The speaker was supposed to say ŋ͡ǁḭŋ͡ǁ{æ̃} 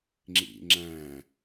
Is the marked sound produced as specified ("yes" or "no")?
yes